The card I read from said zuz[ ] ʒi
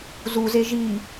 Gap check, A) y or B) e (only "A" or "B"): B